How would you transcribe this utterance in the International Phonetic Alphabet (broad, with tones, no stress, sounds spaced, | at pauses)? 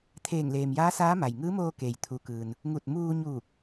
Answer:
t̪ʰ eː˧˩ ŋ l eː˩ m j aː˧˥ s aː˧˥ m a˩ j ŋ ɯː˧˥ m oː˧ k e˩ j t̪ʰ u˩ k ɯː˩ n | ŋ u˧˩ t̚ m uː˧ ɲ uː˧˩ k̚